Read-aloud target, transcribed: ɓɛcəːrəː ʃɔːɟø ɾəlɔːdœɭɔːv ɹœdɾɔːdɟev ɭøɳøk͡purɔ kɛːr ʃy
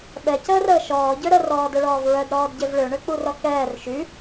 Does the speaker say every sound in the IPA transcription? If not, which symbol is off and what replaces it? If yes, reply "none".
l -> r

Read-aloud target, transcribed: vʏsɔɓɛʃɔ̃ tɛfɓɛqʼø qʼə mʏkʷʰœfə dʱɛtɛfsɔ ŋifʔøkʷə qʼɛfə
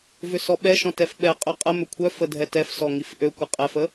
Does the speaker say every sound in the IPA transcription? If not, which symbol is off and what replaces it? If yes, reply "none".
none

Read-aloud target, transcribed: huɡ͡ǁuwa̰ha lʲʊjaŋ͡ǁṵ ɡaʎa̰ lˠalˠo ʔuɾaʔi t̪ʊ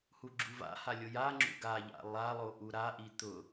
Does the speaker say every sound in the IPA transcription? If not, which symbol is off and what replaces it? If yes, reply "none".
w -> v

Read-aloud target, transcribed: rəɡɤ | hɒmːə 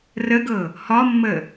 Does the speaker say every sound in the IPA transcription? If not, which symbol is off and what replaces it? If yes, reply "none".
none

